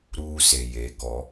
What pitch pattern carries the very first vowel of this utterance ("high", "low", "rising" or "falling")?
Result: high